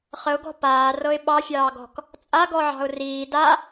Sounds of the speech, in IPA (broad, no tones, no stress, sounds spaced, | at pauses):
χ ə ʊ̯ ɡ ɔ̤ p aː r ɤ ɪ̯ ɓ ɑ fʲ ɑː ɡ ɔ̤ k | t͡sʼ a ɡ ɔ ʕ ɑ̤ ʊ̯ r iː d a